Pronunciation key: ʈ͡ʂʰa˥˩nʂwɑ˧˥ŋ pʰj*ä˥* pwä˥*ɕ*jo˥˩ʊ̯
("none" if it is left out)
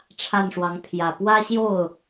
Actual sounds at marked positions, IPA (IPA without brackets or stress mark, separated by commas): ä˨˩, ɕ